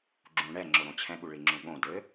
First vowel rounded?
yes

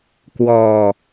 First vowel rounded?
yes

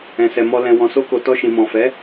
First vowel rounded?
no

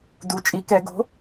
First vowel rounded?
yes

